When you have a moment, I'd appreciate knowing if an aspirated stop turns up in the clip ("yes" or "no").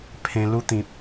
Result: yes